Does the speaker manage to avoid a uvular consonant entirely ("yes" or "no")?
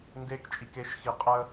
no